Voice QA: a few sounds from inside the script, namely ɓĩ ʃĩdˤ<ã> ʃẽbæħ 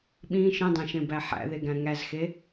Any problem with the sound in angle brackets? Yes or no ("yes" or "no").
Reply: yes